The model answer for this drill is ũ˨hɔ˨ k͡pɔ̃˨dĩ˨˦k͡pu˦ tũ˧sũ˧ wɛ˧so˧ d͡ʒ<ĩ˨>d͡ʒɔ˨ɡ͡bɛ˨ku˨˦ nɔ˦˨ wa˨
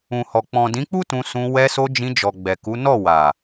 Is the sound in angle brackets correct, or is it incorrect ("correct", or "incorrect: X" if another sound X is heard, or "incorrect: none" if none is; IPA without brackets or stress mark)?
incorrect: ĩ˧